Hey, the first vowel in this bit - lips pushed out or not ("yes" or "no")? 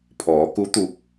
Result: yes